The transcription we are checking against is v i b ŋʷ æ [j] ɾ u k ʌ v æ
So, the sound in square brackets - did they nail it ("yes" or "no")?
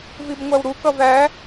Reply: no